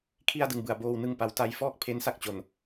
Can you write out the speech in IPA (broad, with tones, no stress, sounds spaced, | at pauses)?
kʰ i˥˩ a̯ d ɯ˧ ŋ b ɯ˨˩ a̯ b oː˧ w n ɯ˧ ŋ p a˨˩ w t a˧ j f ɔː˥˩ k̚ pʰ e˦˥ n s a˥˩ k̚ t͡ɕ o˨˩ n